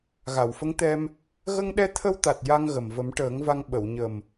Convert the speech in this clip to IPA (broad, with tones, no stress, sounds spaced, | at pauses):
ɣ a˨˩˨ w f ə˧˥ ŋ t̪ ɛ˧ m | ɣ ə˧ ŋ ɗ ɛ˧ t̪ʰ ə˧ w t̪ a˨˩ t̚ j a˧ ŋ ɣ ə˨˩ m v ə˨˩˦ m ʈ əː˨˩˦ ŋ v a˧ ŋ ɓ ə˨˩˨ w ɲ ə˨˩ m